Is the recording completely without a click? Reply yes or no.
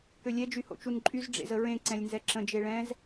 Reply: no